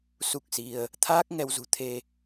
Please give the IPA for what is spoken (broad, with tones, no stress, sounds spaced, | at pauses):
s u˦˥ k̚ s i˧ ə̯ | t̪ʰ aː˦˥ k̚ ŋ ɛ˧ w z ṳ˨˩ t̪ʰ e˧